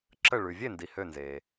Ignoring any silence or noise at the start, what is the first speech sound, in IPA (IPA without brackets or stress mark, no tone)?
ǁ